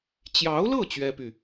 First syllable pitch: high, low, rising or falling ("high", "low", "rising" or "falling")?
rising